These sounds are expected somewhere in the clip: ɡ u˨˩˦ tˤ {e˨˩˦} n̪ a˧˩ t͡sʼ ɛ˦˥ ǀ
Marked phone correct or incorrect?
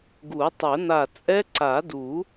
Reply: incorrect: ɛ˨˩˦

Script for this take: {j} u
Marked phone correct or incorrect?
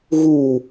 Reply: incorrect: ɣ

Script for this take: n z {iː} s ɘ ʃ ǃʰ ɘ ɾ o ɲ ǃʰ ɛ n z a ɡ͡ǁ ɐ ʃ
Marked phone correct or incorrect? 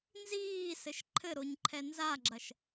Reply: correct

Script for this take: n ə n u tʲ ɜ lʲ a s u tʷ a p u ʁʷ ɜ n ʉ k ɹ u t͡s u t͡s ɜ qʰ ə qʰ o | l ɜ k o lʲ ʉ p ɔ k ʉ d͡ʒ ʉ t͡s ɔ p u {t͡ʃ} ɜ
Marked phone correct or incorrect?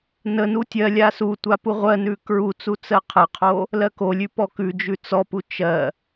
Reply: correct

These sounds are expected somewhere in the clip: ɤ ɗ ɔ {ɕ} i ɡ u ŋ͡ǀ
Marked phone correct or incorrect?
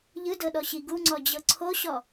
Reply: correct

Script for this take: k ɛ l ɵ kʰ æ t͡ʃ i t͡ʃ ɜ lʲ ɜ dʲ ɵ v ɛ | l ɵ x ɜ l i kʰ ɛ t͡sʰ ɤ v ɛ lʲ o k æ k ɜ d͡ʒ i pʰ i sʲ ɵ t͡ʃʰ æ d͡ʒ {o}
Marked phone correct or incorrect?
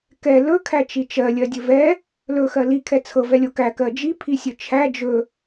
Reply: incorrect: ɵ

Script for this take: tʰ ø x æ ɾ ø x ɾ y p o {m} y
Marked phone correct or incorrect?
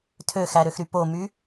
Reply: correct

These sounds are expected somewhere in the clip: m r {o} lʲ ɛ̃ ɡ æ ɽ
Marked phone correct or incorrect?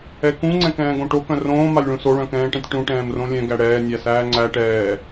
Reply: incorrect: õ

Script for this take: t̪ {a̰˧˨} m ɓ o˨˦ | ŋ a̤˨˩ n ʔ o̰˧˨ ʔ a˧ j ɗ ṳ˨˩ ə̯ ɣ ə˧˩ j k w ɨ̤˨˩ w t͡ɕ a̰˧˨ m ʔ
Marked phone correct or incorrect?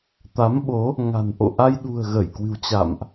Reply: incorrect: a˨˦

